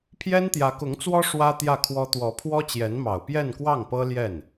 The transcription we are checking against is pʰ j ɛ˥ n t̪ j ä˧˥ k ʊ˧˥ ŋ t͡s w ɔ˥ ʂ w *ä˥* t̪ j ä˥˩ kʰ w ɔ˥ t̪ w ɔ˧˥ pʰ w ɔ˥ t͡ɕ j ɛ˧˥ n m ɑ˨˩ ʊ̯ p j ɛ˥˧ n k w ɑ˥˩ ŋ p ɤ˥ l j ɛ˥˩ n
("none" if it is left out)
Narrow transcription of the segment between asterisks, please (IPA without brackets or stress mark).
ä˥